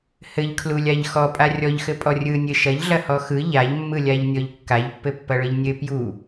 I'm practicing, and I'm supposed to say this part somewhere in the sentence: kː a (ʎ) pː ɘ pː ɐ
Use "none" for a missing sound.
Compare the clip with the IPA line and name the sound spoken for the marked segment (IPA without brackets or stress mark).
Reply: ʎ